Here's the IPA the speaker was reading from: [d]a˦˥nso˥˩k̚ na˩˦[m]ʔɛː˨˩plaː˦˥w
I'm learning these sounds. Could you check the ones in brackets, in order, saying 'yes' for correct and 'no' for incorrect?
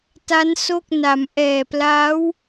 no, yes

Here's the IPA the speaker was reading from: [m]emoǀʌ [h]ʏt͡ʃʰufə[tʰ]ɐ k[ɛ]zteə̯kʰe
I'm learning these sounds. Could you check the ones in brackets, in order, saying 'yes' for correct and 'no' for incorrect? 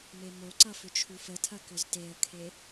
yes, no, yes, no

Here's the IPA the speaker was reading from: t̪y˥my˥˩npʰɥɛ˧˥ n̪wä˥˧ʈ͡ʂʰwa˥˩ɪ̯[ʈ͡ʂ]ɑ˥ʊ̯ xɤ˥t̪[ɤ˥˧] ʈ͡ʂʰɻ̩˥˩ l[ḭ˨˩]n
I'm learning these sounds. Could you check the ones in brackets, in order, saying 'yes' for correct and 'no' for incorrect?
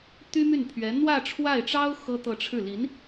yes, yes, no

